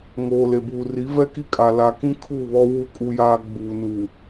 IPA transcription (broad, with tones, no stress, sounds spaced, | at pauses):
ŋ oː˨ l e˨ b uː˨ r i˨˦ v ɛ˦ k i˦ kʼ a˨ l a˨ k ĩ˦ kʰ uː˦˨ β ɔ˦ w u˦˨ kʼ u˦ j aː˦ ɡ͡b uː˨ n uː˨